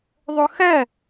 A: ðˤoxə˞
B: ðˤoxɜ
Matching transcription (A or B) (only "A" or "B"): B